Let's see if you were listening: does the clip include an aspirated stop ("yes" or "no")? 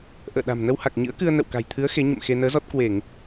yes